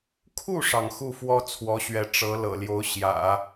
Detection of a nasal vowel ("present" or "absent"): absent